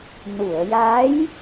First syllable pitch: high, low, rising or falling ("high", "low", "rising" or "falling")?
low